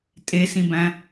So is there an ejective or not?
yes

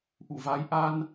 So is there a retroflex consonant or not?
no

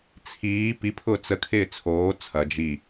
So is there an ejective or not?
no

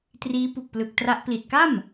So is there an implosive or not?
no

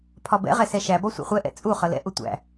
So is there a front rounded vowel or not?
no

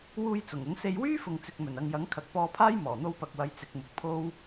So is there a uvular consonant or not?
no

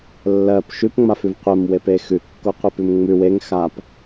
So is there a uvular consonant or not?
yes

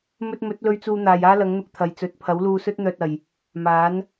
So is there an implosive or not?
no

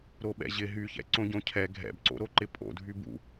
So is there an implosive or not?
yes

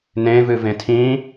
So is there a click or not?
no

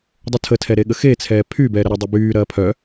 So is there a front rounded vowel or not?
yes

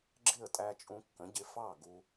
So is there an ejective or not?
yes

